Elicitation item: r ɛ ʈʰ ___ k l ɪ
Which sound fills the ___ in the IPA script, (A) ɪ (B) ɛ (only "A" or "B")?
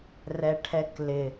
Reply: B